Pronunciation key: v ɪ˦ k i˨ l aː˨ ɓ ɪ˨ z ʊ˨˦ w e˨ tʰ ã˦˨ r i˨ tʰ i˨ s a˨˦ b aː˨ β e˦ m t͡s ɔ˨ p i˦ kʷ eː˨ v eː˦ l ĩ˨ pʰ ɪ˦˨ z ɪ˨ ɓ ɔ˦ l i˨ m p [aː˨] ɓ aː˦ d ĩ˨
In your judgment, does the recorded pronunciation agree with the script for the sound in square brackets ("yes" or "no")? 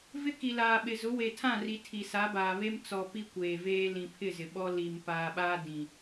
yes